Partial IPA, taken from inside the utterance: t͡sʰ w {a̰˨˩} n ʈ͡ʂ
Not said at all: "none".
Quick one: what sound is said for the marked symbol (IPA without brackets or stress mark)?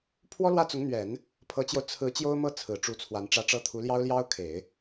a˧˥